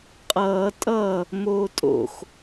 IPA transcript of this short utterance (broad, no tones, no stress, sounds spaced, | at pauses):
qʼ ʌː tʼ ʌː | m oː tʼ o̰ x